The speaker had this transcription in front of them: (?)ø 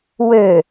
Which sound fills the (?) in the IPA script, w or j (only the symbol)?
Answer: w